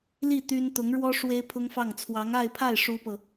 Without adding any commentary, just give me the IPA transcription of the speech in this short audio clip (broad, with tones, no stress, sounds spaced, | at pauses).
l i˥˩ t̪ y˥ n t̪ ʊ˧˥ ŋ ɻ w ɔ˥ ʂ w e˥ ɪ̯ pʰ ʊ˥ ŋ f ɑ˥˩ ŋ t͡sʰ w ɑ˧˥ ŋ a˥˧ ɪ̯ pʰ a˥˩ ɪ̯ ʂ u˥ p ɤ˨